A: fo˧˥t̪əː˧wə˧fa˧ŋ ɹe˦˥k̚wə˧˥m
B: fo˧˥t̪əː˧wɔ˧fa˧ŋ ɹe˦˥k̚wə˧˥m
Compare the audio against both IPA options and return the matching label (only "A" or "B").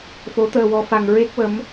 B